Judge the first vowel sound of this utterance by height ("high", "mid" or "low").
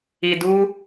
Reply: high